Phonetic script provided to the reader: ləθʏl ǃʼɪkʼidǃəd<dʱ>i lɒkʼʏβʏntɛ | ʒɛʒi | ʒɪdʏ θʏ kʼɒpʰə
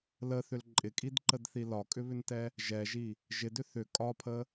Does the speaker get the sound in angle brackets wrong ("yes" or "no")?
yes